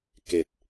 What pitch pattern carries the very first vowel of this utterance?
low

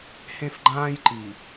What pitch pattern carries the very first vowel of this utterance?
high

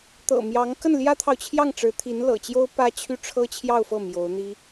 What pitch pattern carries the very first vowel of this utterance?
low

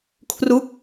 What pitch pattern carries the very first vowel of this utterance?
falling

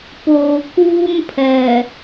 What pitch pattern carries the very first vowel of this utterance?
low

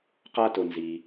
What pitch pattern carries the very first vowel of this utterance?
high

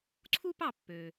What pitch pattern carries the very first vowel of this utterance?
high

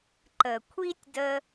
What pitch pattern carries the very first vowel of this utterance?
low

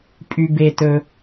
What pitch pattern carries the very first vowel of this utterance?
high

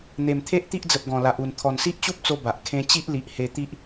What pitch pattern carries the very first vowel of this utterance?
low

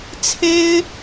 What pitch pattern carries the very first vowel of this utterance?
high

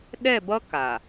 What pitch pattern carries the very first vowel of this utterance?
falling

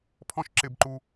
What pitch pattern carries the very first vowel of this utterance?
high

